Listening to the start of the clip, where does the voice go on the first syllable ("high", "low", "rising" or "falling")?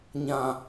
low